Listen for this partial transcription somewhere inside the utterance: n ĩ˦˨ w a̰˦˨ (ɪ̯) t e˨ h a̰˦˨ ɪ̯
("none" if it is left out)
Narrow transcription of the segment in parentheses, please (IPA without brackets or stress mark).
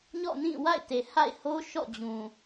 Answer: ɪ̯